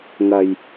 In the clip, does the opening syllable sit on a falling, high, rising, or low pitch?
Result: low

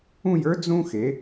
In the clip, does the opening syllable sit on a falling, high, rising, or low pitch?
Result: falling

